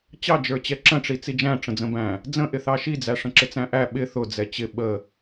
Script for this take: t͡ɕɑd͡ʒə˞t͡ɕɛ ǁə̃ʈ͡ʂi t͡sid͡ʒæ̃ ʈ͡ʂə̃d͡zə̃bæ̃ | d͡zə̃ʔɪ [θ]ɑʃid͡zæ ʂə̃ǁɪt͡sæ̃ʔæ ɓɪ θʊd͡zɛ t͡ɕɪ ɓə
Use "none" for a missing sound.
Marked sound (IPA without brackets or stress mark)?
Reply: θ